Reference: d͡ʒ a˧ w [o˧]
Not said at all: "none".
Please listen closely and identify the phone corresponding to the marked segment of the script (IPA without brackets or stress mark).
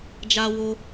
o˧